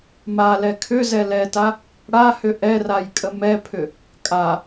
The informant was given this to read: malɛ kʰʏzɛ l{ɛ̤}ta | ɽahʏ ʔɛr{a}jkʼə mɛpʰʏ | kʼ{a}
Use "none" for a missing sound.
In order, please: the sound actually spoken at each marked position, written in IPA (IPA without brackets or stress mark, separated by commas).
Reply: ɛ, a, a